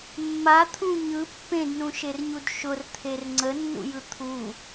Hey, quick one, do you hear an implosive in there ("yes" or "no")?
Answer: no